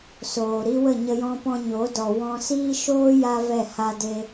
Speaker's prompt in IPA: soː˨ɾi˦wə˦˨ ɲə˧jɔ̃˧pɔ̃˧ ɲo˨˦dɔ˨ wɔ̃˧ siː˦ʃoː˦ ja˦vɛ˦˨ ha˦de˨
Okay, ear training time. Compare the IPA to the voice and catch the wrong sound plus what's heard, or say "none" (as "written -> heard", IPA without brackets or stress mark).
e˨ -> e˦